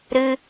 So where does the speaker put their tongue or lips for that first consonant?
tongue tip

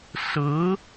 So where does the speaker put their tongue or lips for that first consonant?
tongue tip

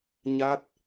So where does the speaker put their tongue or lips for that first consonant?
palate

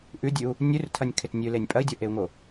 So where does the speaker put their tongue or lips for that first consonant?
throat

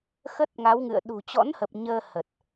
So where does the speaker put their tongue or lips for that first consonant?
velum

